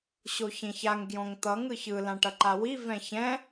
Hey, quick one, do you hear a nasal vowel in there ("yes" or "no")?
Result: yes